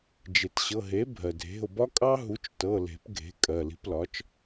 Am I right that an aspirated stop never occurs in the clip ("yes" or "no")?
yes